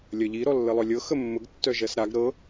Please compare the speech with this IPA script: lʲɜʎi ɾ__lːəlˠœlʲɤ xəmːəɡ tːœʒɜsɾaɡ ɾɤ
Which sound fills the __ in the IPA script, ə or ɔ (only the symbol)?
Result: ɔ